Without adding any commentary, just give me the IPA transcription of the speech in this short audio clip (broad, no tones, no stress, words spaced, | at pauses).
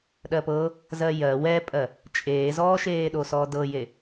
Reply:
ɗɜpɤ | zɜjɜ wɛpʼɜ | t͡ʃʼeːzɔːʃeːɗo sɔːdɤje